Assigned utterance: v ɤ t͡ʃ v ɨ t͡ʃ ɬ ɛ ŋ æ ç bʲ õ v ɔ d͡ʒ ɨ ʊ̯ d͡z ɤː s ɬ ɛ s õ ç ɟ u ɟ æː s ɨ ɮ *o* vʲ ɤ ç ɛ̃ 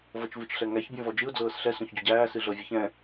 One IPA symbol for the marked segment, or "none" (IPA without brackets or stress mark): ɤ